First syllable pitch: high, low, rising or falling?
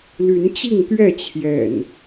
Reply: rising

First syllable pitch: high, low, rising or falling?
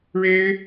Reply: high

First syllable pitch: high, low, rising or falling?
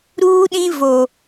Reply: high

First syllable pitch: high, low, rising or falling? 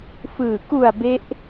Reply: low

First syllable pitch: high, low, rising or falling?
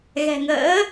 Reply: low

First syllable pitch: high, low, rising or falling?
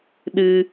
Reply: low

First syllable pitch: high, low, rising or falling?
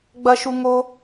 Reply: high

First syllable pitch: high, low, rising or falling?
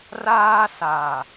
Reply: high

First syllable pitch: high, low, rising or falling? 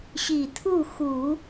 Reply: low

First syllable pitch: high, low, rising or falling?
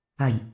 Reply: low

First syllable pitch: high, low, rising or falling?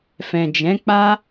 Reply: low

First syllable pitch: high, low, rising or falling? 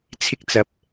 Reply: high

